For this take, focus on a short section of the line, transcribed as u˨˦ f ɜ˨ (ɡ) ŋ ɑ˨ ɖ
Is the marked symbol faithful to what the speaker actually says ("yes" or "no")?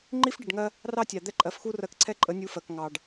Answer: no